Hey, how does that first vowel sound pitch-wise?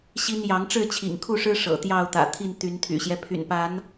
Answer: high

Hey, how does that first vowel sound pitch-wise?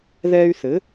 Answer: high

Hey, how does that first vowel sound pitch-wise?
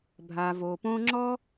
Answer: low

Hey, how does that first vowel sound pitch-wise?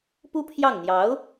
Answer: high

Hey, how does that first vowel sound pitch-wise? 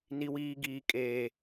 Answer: high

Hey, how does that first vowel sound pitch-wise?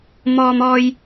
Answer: high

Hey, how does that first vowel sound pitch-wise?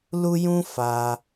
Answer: high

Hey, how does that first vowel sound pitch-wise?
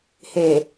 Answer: low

